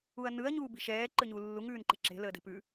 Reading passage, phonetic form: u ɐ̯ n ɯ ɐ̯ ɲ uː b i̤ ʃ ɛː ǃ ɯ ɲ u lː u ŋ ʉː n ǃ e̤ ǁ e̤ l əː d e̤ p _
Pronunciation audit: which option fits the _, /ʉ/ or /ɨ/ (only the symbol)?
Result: ʉ